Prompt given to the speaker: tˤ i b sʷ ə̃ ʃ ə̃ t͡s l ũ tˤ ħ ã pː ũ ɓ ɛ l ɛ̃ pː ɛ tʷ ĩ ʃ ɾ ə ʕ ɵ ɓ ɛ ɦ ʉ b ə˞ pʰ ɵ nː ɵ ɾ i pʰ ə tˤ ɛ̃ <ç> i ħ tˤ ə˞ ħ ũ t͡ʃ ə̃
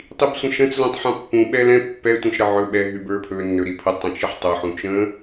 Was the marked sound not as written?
yes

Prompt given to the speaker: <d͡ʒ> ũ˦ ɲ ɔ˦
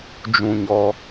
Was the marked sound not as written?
no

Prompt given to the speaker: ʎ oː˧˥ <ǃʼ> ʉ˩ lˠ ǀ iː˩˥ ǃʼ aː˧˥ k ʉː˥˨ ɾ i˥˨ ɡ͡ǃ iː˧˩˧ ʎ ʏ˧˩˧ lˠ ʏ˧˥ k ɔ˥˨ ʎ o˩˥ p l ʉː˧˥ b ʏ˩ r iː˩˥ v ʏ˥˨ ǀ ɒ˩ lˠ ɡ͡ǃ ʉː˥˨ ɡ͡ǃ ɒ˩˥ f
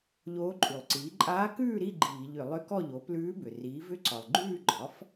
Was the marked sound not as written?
no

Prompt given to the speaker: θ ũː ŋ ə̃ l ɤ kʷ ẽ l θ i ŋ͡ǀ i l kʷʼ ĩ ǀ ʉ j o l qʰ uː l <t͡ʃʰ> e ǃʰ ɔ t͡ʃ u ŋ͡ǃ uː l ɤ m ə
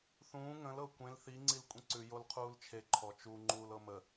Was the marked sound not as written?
no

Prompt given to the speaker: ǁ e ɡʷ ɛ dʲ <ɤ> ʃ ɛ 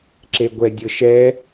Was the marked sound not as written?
no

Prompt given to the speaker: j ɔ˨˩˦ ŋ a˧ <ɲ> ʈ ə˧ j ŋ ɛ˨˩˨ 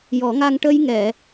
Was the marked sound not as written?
yes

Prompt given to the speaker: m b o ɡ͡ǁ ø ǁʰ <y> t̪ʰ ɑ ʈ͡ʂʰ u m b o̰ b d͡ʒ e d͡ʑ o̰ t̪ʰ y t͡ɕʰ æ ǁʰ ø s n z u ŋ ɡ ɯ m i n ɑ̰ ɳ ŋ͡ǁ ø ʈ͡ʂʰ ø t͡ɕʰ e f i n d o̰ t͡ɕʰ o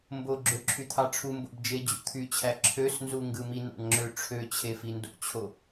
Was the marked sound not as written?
no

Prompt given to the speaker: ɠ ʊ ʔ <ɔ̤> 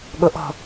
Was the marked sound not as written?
no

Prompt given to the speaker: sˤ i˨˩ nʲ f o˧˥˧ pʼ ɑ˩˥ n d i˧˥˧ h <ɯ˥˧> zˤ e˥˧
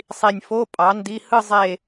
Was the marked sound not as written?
no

